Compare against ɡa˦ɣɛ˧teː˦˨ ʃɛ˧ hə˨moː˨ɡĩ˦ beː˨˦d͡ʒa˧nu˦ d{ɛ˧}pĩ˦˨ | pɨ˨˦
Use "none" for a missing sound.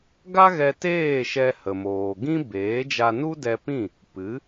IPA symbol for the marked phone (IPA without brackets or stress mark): ɛ˧